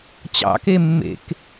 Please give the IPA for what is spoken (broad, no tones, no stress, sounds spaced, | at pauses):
t͡ɕ ɑ̰ k e mː ḛ k